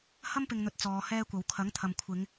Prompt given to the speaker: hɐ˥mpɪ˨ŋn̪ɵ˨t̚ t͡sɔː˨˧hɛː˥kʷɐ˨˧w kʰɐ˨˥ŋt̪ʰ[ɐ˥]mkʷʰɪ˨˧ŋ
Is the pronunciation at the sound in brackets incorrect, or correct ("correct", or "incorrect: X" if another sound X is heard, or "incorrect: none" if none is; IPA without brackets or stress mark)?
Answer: incorrect: ɐ˨